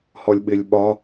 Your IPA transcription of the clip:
hɔlʲɓɪlʲɓɒ

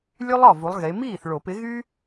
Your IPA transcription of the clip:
lʲʉ˥lˠ ɒ˥˩vu˨˥lˠɣe˨˥ miː˥˩θɭo˨˩˦pɪ˨˥ɣy˥

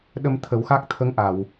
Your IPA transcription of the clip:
ɗə˧mt̪ʰə˨˩˦wxa˦˥k̚t̪ʰə˧˥ŋ ʔa˨˩˨w

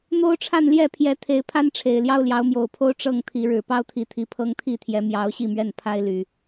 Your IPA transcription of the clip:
n̪o˦ʊ̯ʈ͡ʂʰa˥˨nljɛ˥˨ pʰjɛ˨˦t̪ʰe˨˦ɪ̯pʰa˦nʈ͡ʂʰe˨˩ɪ̯ ljɑ˦ʊ̯ljɑ˨˦ʊ̯mjo˨˩ʊ̯pʰo˦ʊ̯ ʈ͡ʂɤ˥˨ŋt̪ʰi˨˦ ɻɻ̩˨˩pɑ˦ʊ̯t̪ʰi˨˦t̪ʰi˨˦ pʰɤ˦ŋt̪ʰi˥˨t̪ʰjɛ˨˦ mjɑ˨˦ʊ̯ ɕi˥˨mɥɛ˥˨n pʰa˦ɪ̯ly˨˩

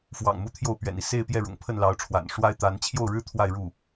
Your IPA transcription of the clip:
fwɑ̰˨˩ŋmu˧˥ t̪ʰjo˥˩ʊ̯pɥɛ̰˨˩ni˦ se˥˧ɪ̯pjɛ˥˩ ɻʊ̰˨˩ŋpʰə˥˩nlɑ˧˥ʊ̯ʈ͡ʂʰwa̰˨˩n ʂwa˥ɪ̯ t̪a˧˥n t͡ɕʰjo˥˩ʊ̯ɻɻ̩˥ t̪ʰwa˥˧ɪ̯ɻu˥˩

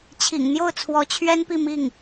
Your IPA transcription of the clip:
t͡ɕʰḭ˨˩ŋn̪jo˥˩ʊ̯t͡sʰwɔ˧˥t͡ɕʰɥɛ˥n pi˥˧mi˥˩ŋ

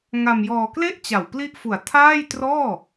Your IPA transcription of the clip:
ŋa˧mjɔː˧ kle˥˩ʔ t͡ɕa˨˩wpli˥˩ʔfu˨˩a̯ tʰaː˥˩jtrɔː˥˩

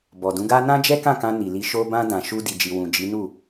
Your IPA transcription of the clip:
bɔ˨dũ˨˦ɡa˦ nã˦d͡ʒɛ˦kã˦˨kã˧ ni˨li˧ ʃo˧bã˧ dã˨ʃu˧ di˨d͡ʒi˨ wũ˨d͡ʒi˨˦ nu˦˨

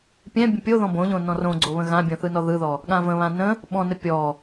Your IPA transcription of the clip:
pʲɛ̃ bʲə̃pʲoðɔ̃ bõʎõ nɔ̃rõɡ͡ǀo βə̃ɣãbʲõ θɯnɔðɯðɔ | ɠãvə̃βã nə̃ | ɓɔ̃nə pʲɔ

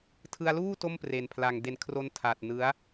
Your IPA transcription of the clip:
tʰɯ˧a̯luː˥˩ to˥˩mpre˨˩npʰla˨˩ŋ de˨˩nkʰro˧n tʰa˨˩t̚ nɯ˦˥a̯

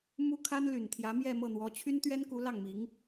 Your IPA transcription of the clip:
mu˥ kʰa˥nly˨˩nt̪ʰjä˧˥ mjɛ˥˧mɤ˥˩n̪wɔ˧˥ t͡ɕʰy˥nt̪ɥɛ˥nku˧˥ lɑ˥˩ŋmi˧˥ŋ

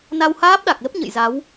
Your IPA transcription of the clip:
na˧whaː˦˥p̚ɗa˨˩k̚lə˦˥p̚ ɲə̰˧˨jza˨˦w

